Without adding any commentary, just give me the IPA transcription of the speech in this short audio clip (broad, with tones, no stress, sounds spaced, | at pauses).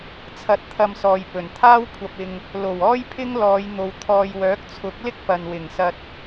t͡sʰ ɐ˧ t̚ t̪ʰ ɐ˧ m s ɔː˨ j p ɵ˨˩ n t̪ʰ aː˥ w kʷʰ ɐ˧ p̚ ɪ˧ ŋ | l o˨˩ w ɔː˥ j pʰ ɪ˥ ŋ l ɔː˨˧ j n̪ o˧ w t̪ʰ ɔː˧ j w œː˨˥ k̚ t͡sʰ ʊ˨˥ k̚ l ɪ˥ k̚ p ɐ˨ n w ɪ˨˩ ŋ s ɐ˧ t̚